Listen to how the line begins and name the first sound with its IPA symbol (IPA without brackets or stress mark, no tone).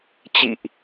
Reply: t͡ɕ